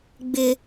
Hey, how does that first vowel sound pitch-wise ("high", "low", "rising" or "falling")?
high